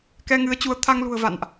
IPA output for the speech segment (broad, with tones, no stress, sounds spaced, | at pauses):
k ɛ˧ ŋ ɨ˨˦ ə̯ t͡ɕ u˨˦ ə̯ t̪ʰ a˧ ŋ l ṳ˨˩ ə̯ v a̰˧˨ n ʔ